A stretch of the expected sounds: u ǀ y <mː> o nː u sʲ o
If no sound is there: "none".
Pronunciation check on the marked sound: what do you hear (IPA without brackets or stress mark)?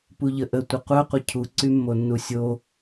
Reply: mː